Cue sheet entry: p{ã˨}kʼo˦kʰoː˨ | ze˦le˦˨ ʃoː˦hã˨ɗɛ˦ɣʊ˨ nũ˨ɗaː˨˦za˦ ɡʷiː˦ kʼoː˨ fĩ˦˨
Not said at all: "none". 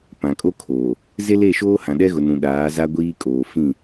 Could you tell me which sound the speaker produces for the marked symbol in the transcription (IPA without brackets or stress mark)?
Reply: ã˨